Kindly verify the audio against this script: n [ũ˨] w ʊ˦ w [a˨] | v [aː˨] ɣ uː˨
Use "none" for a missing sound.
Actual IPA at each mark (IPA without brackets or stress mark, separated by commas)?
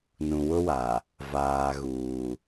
ũ˨, a˨, aː˨